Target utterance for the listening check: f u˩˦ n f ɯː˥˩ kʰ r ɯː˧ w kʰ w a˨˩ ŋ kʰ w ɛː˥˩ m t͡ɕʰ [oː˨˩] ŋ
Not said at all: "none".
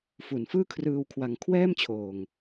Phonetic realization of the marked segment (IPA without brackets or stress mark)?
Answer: oː˨˩